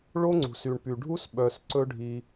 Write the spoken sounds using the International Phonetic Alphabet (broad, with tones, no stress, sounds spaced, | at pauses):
ɭ o˦ ŋ͡ǀ ṳ˨ s y˨ ɳ p y˨ ɖʱ u˦ s ɓ œ˧ s ǀ ɵ˦ ɖʱ i˧